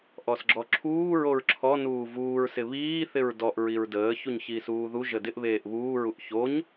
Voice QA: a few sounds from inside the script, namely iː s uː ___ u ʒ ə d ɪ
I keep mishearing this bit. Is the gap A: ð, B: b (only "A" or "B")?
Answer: A